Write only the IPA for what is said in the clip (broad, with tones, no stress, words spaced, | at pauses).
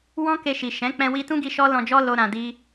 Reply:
wɔ̃˦ke˧ʃi˨ ʃɛ̃˨˦ k͡pɛ̃˧wi˧tũ˦ɡi˧ ʃɔ˦lɔ̃˧d͡ʒɔ˦ lo˧ɾã˨di˧